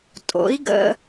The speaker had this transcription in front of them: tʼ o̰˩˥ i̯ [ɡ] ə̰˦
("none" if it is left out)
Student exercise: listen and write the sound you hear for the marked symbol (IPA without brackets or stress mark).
ɡ